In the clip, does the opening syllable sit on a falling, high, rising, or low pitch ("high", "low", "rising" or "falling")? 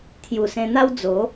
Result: low